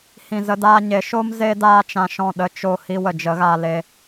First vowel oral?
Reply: no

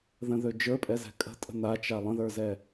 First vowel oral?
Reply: no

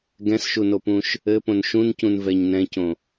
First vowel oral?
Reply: no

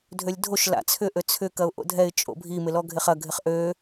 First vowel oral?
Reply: yes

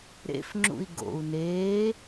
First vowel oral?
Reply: yes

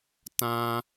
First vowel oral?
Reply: no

